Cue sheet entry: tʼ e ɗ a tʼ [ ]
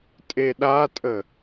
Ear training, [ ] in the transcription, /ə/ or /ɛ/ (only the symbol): ə